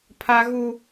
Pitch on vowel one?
high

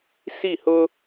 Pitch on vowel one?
falling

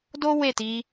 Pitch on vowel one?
high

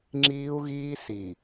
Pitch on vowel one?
high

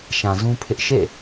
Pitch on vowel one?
low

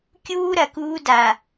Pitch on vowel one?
high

